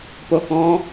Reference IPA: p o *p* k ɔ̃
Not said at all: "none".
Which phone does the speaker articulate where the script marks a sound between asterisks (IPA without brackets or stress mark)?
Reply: none